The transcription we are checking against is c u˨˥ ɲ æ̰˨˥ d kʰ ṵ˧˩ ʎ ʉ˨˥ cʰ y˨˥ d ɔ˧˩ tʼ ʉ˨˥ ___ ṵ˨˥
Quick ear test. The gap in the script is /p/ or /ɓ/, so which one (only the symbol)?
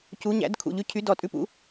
p